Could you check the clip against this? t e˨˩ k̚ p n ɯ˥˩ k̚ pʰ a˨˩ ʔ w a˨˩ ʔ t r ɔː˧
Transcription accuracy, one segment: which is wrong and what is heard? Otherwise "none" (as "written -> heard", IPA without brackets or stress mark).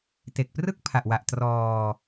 n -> r